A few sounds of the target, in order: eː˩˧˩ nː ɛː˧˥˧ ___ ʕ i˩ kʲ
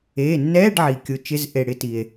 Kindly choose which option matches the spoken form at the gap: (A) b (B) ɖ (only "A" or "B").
B